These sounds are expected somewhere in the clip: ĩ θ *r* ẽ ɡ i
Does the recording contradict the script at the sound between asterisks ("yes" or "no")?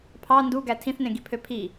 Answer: yes